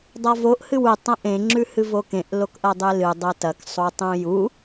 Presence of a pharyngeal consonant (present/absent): absent